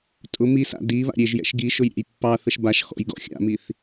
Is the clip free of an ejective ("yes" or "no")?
no